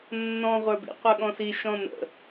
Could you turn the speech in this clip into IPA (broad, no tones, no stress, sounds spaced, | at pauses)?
nː ɔ̃ ʁʷ ə˞ b ḭ qʷ ə˞ ɠ ɔ̃ s i ʃ ɔ̃ n ə̰